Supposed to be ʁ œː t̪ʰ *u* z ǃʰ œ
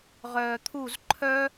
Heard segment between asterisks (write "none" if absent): u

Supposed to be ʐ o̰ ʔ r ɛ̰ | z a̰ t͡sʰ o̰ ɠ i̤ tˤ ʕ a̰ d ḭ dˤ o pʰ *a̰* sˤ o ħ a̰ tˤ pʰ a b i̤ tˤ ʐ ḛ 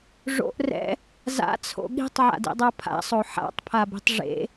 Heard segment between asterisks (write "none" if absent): a̰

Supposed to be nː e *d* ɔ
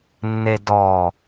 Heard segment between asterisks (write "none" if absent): d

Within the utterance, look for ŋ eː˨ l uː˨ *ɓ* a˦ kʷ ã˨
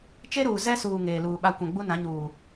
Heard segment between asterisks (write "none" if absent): ɓ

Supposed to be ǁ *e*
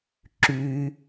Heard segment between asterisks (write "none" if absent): y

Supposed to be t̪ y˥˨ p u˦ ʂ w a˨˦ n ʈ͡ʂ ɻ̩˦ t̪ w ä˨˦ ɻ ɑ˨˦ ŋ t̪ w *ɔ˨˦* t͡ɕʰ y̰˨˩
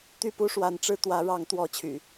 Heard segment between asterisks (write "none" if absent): ɔ˨˦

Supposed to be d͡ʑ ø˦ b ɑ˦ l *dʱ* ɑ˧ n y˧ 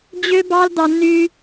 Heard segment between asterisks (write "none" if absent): d̪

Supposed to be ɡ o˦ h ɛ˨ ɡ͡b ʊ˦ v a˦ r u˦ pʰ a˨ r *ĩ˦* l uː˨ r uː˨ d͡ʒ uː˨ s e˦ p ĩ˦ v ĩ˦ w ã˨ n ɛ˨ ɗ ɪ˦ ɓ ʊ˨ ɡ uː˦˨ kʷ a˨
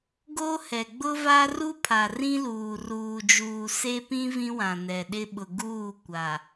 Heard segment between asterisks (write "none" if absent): ĩ˦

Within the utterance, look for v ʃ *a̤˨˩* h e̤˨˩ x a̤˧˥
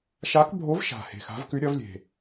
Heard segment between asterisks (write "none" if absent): a̤˨˩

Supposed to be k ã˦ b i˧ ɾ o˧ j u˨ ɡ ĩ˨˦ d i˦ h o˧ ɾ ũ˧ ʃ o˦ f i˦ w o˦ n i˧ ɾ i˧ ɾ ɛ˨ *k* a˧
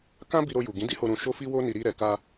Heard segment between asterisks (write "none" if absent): k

